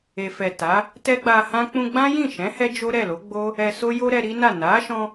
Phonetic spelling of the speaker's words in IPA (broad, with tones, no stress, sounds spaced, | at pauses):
e˨ f ɛ˨ t a˨˦ | t ɛ˦ ɡ͡b a˧ h ã˦ k͡p ũ˧ ɡ͡b ã˦ j ĩ˦˨ ʃ ɛ̃˨˦ h ɛ˦ d͡ʒ o˦ ɾ ɛ˦˨ l o˨˦ ɡ͡b o˦ | ɛ˧ s o˦ j o˦ ɾ ɛ˧ ɾ i˦ n a˦˨ n a˨˦ ʃ ɔ̃˧